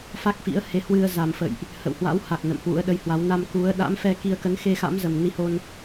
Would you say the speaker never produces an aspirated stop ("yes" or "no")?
yes